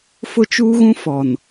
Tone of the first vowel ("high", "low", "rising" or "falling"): high